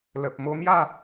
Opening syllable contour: low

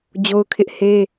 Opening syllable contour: high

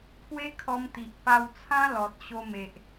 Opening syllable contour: high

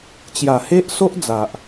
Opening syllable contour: low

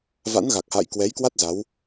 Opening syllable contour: rising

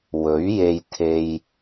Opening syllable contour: rising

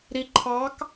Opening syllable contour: low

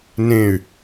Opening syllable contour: falling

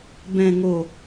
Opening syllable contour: low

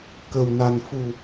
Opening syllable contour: low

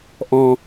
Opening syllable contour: low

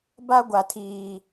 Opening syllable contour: high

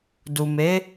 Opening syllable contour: low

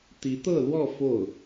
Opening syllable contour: rising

